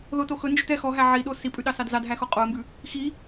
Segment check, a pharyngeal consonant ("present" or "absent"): present